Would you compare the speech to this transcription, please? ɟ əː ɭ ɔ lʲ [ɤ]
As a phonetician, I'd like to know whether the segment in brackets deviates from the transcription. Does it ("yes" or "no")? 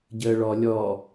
yes